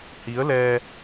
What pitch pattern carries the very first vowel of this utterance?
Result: rising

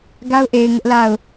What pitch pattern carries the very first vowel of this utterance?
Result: high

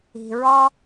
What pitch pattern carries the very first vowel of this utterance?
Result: low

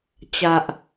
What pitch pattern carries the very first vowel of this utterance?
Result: low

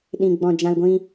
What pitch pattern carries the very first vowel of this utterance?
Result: low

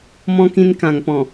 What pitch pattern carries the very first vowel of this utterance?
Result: high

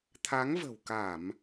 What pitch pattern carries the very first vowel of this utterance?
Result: rising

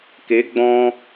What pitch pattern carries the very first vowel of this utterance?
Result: rising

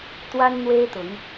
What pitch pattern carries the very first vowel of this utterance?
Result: high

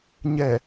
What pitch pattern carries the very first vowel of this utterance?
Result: low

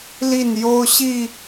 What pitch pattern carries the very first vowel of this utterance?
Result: falling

